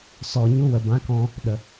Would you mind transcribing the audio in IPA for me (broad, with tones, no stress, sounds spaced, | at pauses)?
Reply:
s ɔ˨ ɲ u˧ w ə˨ b ã˨˦ k ɔ̃˧ | ɗ ə˨